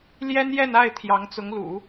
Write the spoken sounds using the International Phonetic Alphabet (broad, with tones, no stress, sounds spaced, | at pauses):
l j ɛ˥ n j ɛ˥˧ n a˥˩ ɪ̯ t̪ʰ j ɑ˧˥ ŋ t͡s ʊ˧˥ ŋ l ṵ˨˩˦